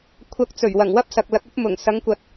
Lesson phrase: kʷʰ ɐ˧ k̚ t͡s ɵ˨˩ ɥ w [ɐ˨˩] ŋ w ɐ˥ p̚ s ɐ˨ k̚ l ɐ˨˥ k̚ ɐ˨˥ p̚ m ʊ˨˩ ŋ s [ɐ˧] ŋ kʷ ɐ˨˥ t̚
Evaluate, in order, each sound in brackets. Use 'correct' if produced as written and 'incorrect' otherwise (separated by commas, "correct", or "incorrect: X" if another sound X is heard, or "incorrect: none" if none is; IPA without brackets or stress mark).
correct, incorrect: ɐ˨˧